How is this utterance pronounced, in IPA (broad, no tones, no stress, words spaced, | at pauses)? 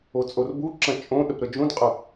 ot͡sʼorbuǁɐ̃ t͡ʃʼõɗəp ɾəd͡ʒũdqʼɐ